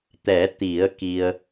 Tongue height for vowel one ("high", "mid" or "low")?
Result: mid